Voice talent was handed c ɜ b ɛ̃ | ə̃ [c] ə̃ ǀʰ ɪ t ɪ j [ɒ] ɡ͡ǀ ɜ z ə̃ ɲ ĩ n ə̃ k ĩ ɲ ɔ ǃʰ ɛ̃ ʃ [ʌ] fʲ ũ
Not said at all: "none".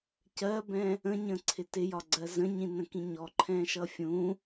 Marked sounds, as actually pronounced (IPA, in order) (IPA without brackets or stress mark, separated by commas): ɲ, ɒ, ʌ